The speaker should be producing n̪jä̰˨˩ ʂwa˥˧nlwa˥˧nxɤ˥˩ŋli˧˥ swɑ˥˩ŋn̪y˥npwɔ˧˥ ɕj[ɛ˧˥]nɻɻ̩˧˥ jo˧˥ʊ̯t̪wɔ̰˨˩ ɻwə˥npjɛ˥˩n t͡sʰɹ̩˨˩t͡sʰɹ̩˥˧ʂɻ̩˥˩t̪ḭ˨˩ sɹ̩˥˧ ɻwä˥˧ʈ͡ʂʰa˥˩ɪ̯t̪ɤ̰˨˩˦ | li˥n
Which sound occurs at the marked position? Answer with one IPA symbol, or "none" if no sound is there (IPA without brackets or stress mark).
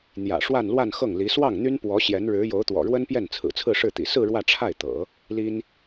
ɛ˧˥